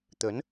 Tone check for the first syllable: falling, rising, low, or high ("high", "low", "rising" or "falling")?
rising